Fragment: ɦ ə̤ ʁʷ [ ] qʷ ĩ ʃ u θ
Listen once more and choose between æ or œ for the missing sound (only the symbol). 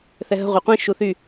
œ